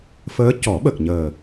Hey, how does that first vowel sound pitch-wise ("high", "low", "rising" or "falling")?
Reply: rising